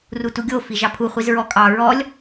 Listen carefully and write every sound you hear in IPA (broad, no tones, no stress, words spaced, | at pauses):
rutuɡʲo fiʒɑpʰu χʷizɹɔkʼɑ ɹɔlʲ